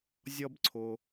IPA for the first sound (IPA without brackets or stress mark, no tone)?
zʲ